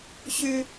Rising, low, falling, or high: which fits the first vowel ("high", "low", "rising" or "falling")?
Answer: high